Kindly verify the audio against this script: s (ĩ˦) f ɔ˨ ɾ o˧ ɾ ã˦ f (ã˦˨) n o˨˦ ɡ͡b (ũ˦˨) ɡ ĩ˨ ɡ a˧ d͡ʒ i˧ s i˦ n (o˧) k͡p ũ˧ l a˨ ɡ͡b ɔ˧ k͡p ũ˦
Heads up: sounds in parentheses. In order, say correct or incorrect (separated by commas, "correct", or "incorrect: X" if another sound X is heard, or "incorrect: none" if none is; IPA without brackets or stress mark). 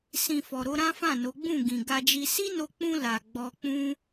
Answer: incorrect: ĩ˨, correct, correct, correct